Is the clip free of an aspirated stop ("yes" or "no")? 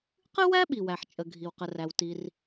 yes